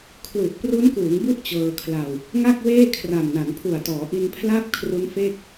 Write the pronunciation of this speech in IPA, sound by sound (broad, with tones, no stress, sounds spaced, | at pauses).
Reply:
kʰ l u˨˩ ʔ p r u˦˥ n k uː˩˦ ŋ b u˦˥ ʔ t͡ɕ ɤː˧ kʰ l a˧ w | ŋ a˥˩ k̚ w eː˥˩ kʰ r a˨˩ m n a˩˦ n pʰ u˨˩ a̯ t ɔː˩˦ ʔ i˧ n pʰ l a˥˩ p̚ kʰ r u˦˥ n f e˥˩ k̚